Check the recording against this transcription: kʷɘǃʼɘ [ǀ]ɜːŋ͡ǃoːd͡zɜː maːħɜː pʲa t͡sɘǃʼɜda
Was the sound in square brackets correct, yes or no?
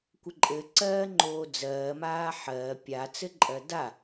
yes